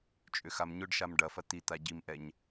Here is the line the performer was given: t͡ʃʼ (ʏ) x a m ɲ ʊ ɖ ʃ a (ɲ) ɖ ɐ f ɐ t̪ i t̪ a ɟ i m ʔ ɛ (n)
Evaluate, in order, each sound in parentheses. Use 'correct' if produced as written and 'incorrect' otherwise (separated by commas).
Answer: correct, incorrect, incorrect